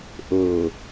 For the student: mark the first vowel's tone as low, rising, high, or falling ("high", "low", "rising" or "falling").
low